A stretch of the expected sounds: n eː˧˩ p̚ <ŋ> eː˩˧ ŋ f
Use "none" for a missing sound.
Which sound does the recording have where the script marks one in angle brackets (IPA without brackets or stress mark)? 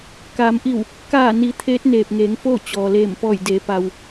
ŋ